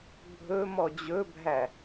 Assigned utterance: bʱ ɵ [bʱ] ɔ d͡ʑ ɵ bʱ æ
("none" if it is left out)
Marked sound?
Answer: m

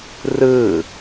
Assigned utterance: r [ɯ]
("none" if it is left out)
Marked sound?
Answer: ɯ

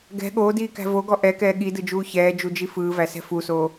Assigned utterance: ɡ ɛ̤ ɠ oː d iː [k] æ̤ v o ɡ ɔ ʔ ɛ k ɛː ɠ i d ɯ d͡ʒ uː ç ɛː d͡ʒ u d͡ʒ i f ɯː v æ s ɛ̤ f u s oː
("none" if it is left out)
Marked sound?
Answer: k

